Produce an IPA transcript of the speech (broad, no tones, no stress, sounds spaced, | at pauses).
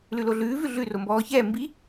l ʉ l o ɮ ʉː v ʉ ɮ ʉ r o m b ɔː ç ɛː m b i